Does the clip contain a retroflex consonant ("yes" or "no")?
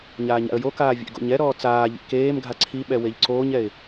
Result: no